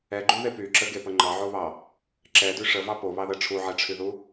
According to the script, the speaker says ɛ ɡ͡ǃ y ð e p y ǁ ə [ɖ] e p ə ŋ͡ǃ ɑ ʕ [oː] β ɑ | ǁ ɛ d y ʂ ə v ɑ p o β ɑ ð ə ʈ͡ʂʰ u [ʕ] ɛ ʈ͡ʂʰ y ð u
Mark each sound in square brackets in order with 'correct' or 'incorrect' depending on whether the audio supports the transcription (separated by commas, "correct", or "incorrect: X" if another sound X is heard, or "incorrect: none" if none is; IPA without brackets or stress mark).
incorrect: ɡ, incorrect: o, correct